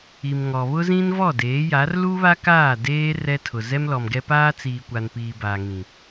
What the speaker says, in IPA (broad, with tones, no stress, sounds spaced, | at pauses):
i˨ m ŋ ɔ˨ β ʊ˦ z ĩ˦ n v ɔ˦˨ d eː˨˦ j a˨˦ r l u˦ β a˦ k aː˦˨ d eː˦ r ɛ˦ tʰ ʊ˨ z ɛ˦ m l ɔ˨ m ɡ ɛ˦ p aː˦ t͡s iː˨ kʷ a˨ n p iː˨ b a˨ ŋ ĩ˨